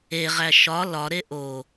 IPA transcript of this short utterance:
e ʁ æ ʃ ɒ l ɒ ɾ e ʔ o

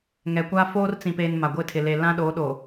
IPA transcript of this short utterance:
ŋ ɛ˨ kʷ a˦ f oː˦ r t͡s ĩ˨ p eː˨ n m a˨ ɡʷ ɪ˦˨ tʰ ɪ˨ l e˨ l ã˦ ɗ oː˨˦ ɗ o˨

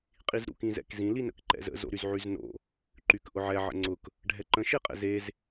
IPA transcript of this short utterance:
qʼ i z ɾ ṵ k ĩ z ɛ̰ k z ĩ l i n ə̰ k ǃ ɛ̰ z ə̰ z o̰ ɾ y z ʕ y z n o̰ | ǃ y k ʔ ʊ ʕ ɛ ʕ ə̰ ŋ͡ǀ ʊ k | ɖʱ ɛ ǃ ə̃ ʃ e qʼ ɛ̰ z e z

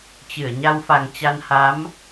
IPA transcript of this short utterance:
t͡ɕ ɨ˧˩ ə̯ ɲ a˧ w f a˨˩ ŋ t͡ɕ a˧ n h a˨˦ m

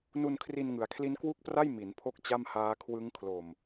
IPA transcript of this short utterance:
n u˧ n kʰ r i˧ n ŋ ɯ˩˦ a̯ kʰ l i˦˥ n k w u˥˩ k̚ p r a˥˩ j m i˩˦ n pʰ o˥˩ k̚ t͡ɕ a˥˩ m h aː˦˥ kʰ w ɯ˦˥ ŋ kʰ l o˨˩ m

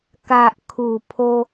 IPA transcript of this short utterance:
k a˨ ʔ kʰ u˨˩ pʰ o˧

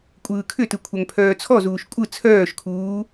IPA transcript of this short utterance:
kʷʼ ɯː kʰ ʏ t ɯ kʷʰ œ ŋ pʰ œː t͡sʰ ɔ z uː ʃ kʷʼ ɯ t͡sʰ œː ʃ kʰ uː

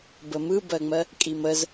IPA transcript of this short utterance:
b ə m ɯ b ɜ ŋ͡m ɜ | kʼ i m ə z

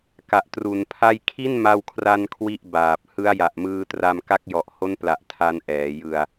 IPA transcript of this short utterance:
k a˨˩ ʔ t r u˨˩ n pʰ a˥˩ j kʰ i˥˩ n m a˧ w kʰ r a˧ n kʰ w i˥˩ ʔ b aː˨˩ p̚ h ɯ˦˥ a̯ j a˨˩ ʔ m ɯː˧ t r a˧ m k a˦˥ k̚ j ɔ˨˩ ʔ h o˦˥ n p l a˨˩ ʔ tʰ a˧ n ʔ ɛː˩˦ j ɯ˧ a̯

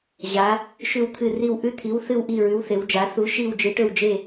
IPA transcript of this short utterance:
ʑ a˩˧ | ʃ ʉ˧˩ w t̪ʰ ɨ˧˩ r i˧˩ w ʔ ʉ˧˩ t̪ʰ i˩˧ w θ ɨ˧˩ w ʔ i˧˩ ɹ ʉ˩˧ w θ e˩˧ w d͡ʒ a˩˧ θ u˩˧ ʃ i˧˩ w d͡ʒ ɨ˩˧ ʈ ɵ˧˩ w d͡ʒ e˧˩

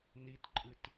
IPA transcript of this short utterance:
n i t ǃʼ ɨ t

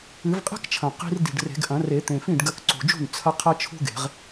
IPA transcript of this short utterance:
ɨ˨˩˦ v qʼ e̤˥ k t͡ʃʰ ɐ̃˨˩ q i̤˧ r d i̤˨˩ ɖ r e̤˨˩˦ ɡ ʔ ɐ̃˨˩˦ r e˨˩˦ t̪ ẽ˨˩ f ĩ˥˩ ɖ ɡ ɐ˧ k ǀ ṳ˨˩ d͡ʒ ṳ˥˩ n t͡sʰ ɐ˥ qʰ ɐ˥ t͡ʃʰ ṳ˥ ɡ e̤˨˩˦ ʁ

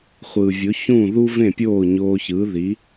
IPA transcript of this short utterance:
χʷ ɯː˩ vʲ o˩˥ ç ũ˥˩ ð u˥ v ẽ˥˩ pʲ oː˥˩ ɲ oː˧ ç ɯː˩˥ ð i˩˥

